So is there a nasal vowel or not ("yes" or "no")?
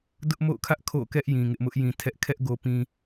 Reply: yes